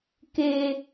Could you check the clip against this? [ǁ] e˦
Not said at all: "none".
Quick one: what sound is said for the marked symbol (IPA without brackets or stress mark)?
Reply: k